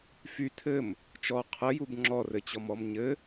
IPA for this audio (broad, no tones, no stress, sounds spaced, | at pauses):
f y tʰ ɘ m | t͡ʃ ɔ qʰ ə j u b ŋ͡ǁ ɔ r ɘ t͡ɕ ɔ m ɔ m ɲ ɘ